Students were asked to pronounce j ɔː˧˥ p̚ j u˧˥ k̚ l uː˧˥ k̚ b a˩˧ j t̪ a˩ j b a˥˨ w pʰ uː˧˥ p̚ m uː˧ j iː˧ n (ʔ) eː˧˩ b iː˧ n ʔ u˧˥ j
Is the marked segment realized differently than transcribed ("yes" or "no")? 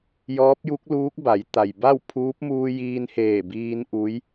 yes